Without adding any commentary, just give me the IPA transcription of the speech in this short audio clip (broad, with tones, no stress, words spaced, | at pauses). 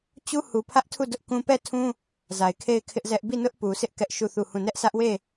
t͡ɕu˦hu˨pʰä˦ʔtʰu˦˨ dʊ˦ʔkũ˦ pɛ˦˨tʰũ˦ | za˨ɪ̯kʰe˦˨ɪ̯kʰɪ˦ʔzɛ˦ʔ bi˦˨nʊ˦ʔpu˨sʰɪ˦ʔ kɛ˦ʔʃu˦˨θu˦˨hũ˦˨ nɛ˦ʔsä˦ʔwe˦˨